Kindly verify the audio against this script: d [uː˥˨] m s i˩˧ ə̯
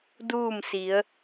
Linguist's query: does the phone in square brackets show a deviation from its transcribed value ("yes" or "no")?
no